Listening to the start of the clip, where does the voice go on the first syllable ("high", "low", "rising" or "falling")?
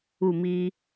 falling